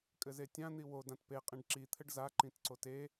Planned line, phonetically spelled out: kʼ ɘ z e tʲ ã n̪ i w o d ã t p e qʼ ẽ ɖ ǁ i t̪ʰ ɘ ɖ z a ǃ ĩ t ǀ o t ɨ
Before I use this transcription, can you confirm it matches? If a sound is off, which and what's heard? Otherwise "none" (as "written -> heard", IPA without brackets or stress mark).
ɨ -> e